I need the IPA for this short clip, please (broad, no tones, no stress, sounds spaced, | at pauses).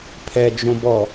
pʰ ɛ d͡ʒ õ b ɔ